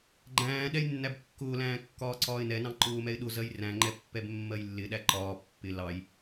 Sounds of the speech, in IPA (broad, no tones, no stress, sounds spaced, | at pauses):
ɡ͡ǃ æ̃ː ɗ ɛ j nː æ b kː ʊː l æ̃ː kː ɒː ǀ ɒː ɪ̯ n ɛ n ɑ̃ ǃ ʊː m ɛ ɪ̯ ɗ ʊ z ɜ j r æ̃ ŋ͡ǃ ɛ pː ɛ b mː ɜ j lː ɪ ɗ æ ǃ ɒː pː ɪ l ɑ j